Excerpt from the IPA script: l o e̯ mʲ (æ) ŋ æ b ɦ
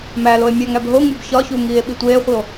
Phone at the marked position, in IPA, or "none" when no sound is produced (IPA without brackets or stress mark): æ